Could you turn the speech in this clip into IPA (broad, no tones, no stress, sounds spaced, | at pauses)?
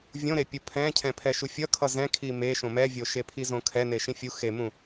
vʲ õ ɾ e pʲ u pʰ ɛ̃ cʰ ɛ̃ pʰ ɛ ʃ u fʲ ʌ kʰ ʌ z ɛ̃ kʰ i m e ʃ õ m ɛ vʲ o ʃ e pʰ i z õ kʰ ɛ n e ʃ ĩ fʲ u x e m ũ